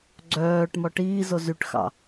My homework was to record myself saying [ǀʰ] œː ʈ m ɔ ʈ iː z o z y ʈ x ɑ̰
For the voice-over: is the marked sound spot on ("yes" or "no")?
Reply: no